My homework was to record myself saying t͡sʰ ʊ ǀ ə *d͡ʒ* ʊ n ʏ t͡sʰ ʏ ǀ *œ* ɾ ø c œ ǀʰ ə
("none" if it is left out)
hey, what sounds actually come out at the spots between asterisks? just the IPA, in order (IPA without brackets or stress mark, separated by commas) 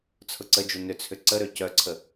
d͡ʒ, ə